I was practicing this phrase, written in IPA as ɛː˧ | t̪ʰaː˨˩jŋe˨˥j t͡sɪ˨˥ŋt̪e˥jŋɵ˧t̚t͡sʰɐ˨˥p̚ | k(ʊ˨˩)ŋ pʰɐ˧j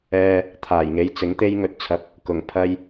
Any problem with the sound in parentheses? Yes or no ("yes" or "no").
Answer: no